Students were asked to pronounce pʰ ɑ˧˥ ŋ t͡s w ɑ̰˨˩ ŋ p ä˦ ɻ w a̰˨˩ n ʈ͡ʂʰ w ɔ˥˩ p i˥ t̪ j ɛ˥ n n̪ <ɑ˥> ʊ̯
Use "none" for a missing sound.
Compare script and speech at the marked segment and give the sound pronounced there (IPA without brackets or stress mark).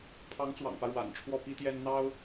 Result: ɑ˥